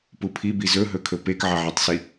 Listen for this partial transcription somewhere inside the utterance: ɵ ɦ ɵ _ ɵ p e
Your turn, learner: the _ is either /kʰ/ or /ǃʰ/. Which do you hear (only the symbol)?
kʰ